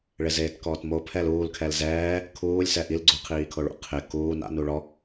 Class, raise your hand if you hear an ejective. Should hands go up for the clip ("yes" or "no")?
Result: no